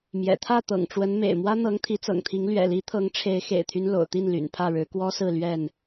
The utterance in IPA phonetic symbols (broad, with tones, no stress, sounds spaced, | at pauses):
m j ɛ̰˨˩ t̪ʰ ä˥˨ t̪ ɤ̰˨˩ ŋ ʈ͡ʂ w ə˨˦ n m ḛ˨˩ ɪ̯ m w ä˦ n̪ ɤ˨˦ ŋ t̪ʰ i˨˦ t͡s ɤ̰˨˩ ŋ t̪ʰ i˨˦ ŋ l ɥ ɛ̰˨˩ l i˨˦ t̪ʰ ɤ˨˦ ŋ ʈ͡ʂʰ e˨˦ ɪ̯ x ḛ˨˩ ɪ̯ t̪ʰ y˦ n l o̰˨˩ ʊ̯ t̪ i˥˨ n l y̰˨˩ n pʰ ä˥˨ ɻ ɻ̩˨˦ k w ɔ˦ s ɹ̩˥˨ l ɥ ɛ˥˨ n